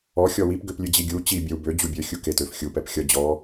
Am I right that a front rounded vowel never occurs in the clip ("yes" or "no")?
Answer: no